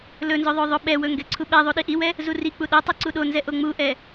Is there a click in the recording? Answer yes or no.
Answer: yes